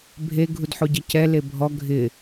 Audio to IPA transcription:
bʱ e ɡʱ u d ħ o ɟ ɛ c ɛ l e bʱ ɔ ɡʱ ɪ

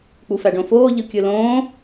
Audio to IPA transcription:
k͡p u f æ ɖ õ f oː ʎ ɯ kʲ ɯ l õː

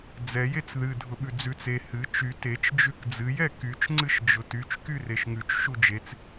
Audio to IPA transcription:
d͡z ɛ j e t͡s ð ɨ dʱ ʊ ɓ ʉ d͡z ʉ t͡s e h ɨ t͡ʃ y t e t͡ʃ d͡ʒ ʉ k d͡z ɨ j ɛ k y t͡ʃ ŋ͡ǀ ɨ ʃ d͡ʒ ʊ t y t͡ʃ k y r e ʃ ŋ ʉ t͡ʃ ʃ u d͡ʒ e t͡s

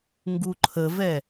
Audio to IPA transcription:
ŋ ɡ u ǃʰ ə v ɛ

